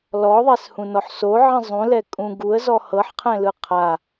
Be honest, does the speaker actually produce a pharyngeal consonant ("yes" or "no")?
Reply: yes